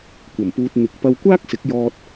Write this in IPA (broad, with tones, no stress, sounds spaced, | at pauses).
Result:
kʷ ɐ˨˩ m p uː˨ t̚ n̪ ɪ˨ k̚ p ɐ˧ w kʷ aː˥ k̚ s ɪ˨˥ k̚ j ɔː˧ t̚